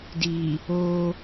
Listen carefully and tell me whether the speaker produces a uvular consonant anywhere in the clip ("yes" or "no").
no